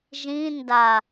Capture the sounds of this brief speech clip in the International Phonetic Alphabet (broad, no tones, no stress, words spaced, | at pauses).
ʒĩ nda